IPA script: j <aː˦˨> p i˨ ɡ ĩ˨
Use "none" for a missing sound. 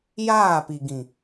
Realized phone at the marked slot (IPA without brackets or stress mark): aː˦˨